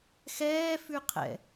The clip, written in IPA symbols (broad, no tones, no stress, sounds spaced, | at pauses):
x ɛː f ʉ qʰ ɛ̰